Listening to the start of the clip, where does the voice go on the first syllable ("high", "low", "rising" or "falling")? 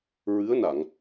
rising